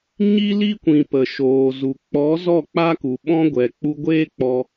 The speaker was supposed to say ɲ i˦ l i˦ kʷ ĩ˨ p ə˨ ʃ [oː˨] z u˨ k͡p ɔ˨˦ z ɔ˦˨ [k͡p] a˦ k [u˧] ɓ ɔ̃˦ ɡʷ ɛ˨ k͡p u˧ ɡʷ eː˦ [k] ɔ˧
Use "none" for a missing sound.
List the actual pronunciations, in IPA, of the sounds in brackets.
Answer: oː˨, k͡p, u˨, k͡p

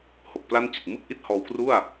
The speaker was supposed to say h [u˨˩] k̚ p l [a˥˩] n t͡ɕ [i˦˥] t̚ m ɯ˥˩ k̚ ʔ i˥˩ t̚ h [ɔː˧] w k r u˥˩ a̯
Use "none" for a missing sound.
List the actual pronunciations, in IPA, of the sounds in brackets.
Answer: o˨˩, a˥˩, i˨˩, ɔː˧

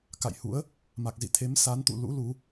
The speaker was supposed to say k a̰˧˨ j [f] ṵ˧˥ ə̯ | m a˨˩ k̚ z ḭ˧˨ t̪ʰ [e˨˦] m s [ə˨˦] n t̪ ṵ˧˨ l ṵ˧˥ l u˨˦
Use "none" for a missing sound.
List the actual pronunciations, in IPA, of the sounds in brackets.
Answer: h, e˨˦, a˨˦

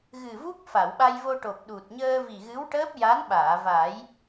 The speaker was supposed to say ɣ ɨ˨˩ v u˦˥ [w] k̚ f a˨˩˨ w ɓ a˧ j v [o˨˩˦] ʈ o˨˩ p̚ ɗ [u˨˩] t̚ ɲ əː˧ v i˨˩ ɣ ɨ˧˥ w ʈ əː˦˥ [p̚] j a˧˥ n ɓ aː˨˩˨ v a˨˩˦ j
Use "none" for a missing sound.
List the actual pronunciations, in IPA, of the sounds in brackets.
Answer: none, o˧, u˨˩, p̚

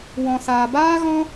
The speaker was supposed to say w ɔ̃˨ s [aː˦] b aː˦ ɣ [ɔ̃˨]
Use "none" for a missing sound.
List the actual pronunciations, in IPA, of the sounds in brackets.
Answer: aː˨, ɔ̃˦

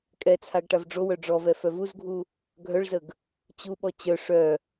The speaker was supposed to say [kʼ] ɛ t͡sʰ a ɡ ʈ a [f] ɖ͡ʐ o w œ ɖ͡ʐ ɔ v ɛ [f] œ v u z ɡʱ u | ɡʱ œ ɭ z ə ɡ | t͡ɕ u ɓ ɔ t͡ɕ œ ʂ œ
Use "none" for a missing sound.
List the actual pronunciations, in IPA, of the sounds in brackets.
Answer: kʼ, v, f

